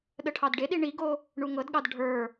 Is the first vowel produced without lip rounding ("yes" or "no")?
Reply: yes